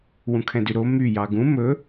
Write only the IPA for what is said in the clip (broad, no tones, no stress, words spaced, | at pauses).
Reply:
wũkʰɛ̃dyɾo my jɑɡũ mɵ